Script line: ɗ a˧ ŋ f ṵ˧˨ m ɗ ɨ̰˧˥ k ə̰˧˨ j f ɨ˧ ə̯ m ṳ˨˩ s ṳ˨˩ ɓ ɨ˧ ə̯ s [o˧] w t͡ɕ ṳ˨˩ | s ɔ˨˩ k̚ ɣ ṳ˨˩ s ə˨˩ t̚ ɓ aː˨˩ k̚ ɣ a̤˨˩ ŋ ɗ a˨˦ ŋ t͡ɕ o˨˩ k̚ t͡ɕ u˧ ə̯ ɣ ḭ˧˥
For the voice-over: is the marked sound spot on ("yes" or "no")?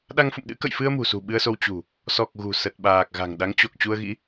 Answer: yes